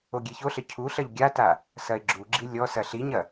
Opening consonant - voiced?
yes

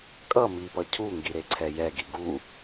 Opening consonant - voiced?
no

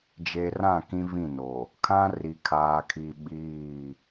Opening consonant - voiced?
yes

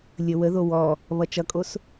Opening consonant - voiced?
yes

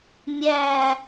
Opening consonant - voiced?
yes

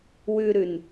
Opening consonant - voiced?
yes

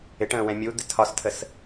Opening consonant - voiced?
no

